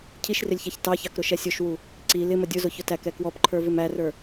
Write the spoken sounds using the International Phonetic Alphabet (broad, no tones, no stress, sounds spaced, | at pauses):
cʰ i ʃ r ɪ lʲ ç æ ç t ɑ ç ɑ k ɾ ʊ ʃ ɛ sʲ ʊ ʃ w u | ǀ i l ɪ m ə dʲ ʊ z ʊ ç ʊ t æ k ɛ k w ɔ p ǃʰ ə˞ v ɪ m æ r ə˞